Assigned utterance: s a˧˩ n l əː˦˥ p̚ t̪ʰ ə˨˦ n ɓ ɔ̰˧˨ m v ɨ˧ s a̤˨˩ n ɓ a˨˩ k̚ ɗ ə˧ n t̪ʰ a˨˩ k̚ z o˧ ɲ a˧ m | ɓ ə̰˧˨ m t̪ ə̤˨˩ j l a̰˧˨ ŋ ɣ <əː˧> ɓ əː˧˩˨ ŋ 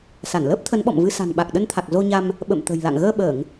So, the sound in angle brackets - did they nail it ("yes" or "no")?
yes